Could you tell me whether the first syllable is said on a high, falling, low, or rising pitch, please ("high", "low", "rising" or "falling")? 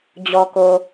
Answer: low